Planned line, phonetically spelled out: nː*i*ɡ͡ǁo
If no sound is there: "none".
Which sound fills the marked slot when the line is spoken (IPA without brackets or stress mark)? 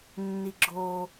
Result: i